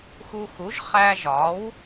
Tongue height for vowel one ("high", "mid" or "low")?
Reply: high